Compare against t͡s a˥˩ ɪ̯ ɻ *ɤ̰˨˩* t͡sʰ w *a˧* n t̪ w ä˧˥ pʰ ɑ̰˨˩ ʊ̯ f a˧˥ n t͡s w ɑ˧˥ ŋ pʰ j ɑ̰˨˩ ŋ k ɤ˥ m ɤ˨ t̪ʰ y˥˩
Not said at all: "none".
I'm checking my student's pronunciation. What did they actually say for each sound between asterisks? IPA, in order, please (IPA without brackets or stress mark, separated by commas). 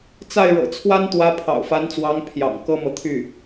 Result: ɤ̰˨˩, a˥